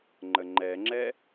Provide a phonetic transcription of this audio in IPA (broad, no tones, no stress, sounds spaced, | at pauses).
ŋ͡ǃ ə ŋ͡ǃ ɛ ŋ͡ǁ ɛ